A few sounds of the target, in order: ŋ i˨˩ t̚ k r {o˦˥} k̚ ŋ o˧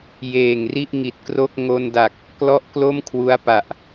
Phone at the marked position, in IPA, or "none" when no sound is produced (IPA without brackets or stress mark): o˥˩